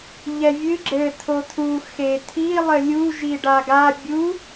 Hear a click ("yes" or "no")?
yes